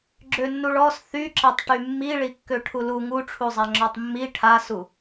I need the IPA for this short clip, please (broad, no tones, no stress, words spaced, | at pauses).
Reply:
ɡ͡ǁønːuɭɔs θyǁɛtˤ ʈymːi ɭikːøʈʰulu ŋuʈ͡ʂʰuzˤa ŋ͡ǁɔtˤmːi ʈʰasu